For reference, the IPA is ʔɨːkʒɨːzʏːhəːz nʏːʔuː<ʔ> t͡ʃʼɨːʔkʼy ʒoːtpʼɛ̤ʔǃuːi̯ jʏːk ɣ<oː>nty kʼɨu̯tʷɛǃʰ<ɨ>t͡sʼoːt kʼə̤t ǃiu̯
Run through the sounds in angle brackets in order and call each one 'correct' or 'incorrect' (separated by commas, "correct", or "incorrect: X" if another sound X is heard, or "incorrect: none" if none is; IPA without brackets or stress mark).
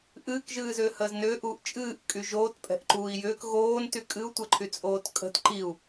correct, correct, incorrect: y